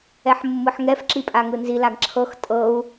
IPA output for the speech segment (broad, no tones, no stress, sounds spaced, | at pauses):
ɛ ħ mː ɯ ħ ŋ ɛ f ǁ i pʼ a ŋ ɯ n z i l a ɡ ǁʰ ɤ x tʼ ɤ u̯